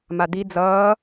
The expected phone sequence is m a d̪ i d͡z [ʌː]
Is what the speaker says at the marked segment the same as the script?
yes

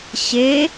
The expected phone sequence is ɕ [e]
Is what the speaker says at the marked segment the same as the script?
yes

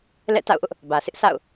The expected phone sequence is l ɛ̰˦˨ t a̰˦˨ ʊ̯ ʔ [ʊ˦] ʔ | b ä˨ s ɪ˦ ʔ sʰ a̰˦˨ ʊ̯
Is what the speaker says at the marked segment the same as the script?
yes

